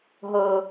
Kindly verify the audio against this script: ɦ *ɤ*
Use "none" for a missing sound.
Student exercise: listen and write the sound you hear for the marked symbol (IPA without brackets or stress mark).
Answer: ɤ